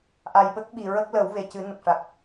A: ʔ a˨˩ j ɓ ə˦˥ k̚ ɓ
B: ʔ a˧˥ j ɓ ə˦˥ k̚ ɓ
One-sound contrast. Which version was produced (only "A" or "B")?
A